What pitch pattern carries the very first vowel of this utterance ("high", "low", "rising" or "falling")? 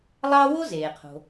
high